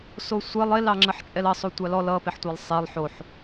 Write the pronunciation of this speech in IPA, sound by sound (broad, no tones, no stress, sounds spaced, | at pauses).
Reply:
s o sʷ ɛ lˠ e l ɑ ŋ͡ǁ ə ħ t͡ʃʼ ɛ l ʌ sˤ o tʷ ɑ l ɔ l ʌ p e ħ tʷ a lˠ sˤ e lˠ ħ o ħ